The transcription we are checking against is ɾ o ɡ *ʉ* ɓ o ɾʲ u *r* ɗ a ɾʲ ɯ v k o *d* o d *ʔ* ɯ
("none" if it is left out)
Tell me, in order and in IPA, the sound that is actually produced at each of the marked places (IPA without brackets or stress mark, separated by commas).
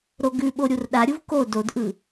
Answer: ʉ, r, d, ʔ